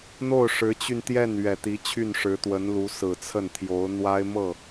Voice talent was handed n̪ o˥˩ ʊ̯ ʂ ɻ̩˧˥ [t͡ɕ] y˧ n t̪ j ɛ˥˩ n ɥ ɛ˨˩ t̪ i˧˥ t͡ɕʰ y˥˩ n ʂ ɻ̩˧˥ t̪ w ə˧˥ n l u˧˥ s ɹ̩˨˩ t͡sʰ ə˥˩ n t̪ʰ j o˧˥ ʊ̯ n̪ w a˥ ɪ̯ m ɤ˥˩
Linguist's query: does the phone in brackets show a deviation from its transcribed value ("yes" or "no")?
no